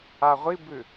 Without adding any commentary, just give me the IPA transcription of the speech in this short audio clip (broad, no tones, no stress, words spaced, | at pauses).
aʁʷibʉ